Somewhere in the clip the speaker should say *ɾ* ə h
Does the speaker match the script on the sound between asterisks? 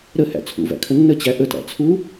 yes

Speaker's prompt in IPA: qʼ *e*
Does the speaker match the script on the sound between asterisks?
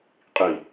no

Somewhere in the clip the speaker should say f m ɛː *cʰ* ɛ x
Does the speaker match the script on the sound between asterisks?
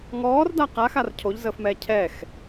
yes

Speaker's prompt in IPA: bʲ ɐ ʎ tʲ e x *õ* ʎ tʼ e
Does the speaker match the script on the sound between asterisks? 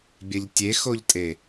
no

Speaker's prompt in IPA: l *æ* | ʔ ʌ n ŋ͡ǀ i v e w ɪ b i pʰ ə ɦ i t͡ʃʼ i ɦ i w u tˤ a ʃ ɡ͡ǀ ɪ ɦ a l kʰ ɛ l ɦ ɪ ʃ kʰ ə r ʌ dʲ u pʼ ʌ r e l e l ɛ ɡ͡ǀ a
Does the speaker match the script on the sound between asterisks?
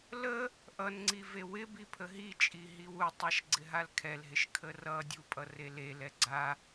no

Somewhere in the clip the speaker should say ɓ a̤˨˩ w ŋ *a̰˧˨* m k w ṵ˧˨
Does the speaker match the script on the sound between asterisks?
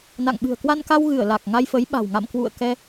yes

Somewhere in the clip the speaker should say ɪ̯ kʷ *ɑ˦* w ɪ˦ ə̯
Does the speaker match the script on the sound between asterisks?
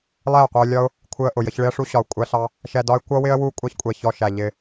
no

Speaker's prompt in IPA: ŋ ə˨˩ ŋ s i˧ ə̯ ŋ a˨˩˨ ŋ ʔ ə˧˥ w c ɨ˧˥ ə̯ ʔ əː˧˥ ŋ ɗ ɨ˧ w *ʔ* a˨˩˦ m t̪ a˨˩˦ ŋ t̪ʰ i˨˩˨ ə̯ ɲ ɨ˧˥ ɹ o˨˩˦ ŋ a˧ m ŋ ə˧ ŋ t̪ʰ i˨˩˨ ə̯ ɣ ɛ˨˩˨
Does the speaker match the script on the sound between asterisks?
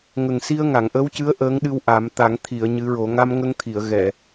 yes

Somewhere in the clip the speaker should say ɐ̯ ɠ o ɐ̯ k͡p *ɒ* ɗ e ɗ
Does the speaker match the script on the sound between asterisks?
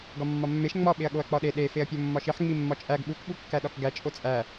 yes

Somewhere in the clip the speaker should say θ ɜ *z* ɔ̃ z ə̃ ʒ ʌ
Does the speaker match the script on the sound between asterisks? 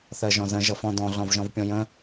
no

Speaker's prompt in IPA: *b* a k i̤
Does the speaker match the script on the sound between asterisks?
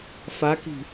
no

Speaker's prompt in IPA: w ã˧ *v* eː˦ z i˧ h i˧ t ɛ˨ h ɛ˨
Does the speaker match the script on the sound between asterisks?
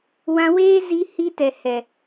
no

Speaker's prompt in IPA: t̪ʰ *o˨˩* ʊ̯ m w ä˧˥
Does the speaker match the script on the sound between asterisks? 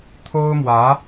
no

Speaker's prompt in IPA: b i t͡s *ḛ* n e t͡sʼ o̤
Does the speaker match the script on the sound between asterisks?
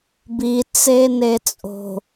no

